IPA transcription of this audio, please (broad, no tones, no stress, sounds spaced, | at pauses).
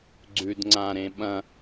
ɡ͡ǀ ʉ d ŋ͡ǀ ã ɾ ẽ ɓ ɐ̃